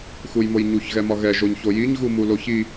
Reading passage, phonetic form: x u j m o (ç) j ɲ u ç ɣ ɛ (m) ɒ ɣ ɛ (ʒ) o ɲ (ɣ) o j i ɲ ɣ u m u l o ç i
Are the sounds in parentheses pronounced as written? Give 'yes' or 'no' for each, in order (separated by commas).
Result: no, yes, yes, no